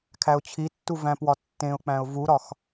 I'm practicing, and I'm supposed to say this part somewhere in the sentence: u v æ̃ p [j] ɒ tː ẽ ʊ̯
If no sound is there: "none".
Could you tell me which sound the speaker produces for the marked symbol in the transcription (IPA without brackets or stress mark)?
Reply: w